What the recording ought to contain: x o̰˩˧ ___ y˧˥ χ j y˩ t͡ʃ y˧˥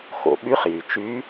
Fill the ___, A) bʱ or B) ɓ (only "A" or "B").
B